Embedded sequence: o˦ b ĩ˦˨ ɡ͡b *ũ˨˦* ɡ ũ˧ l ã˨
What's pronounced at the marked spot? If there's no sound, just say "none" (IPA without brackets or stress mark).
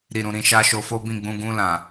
ũ˧